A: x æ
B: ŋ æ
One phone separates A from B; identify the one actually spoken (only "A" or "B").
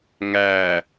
B